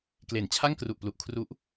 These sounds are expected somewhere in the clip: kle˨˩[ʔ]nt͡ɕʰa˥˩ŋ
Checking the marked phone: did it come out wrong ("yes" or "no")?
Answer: yes